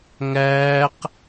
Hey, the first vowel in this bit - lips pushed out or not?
no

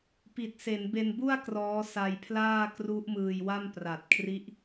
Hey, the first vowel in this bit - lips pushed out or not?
no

